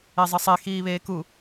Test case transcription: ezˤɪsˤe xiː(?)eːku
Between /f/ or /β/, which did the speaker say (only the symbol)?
β